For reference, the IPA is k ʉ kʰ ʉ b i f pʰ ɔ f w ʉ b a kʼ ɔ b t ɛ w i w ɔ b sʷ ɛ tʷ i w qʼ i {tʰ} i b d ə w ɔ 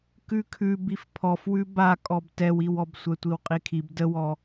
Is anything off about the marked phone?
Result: yes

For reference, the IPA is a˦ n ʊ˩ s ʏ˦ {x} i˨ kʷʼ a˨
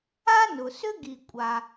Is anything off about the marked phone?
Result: yes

